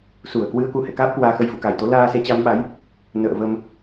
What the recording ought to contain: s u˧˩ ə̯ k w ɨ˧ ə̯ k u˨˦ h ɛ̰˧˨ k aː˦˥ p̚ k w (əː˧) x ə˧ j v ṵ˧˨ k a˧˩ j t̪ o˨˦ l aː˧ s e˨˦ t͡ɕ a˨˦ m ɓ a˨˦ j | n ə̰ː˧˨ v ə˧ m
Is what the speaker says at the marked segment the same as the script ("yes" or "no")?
no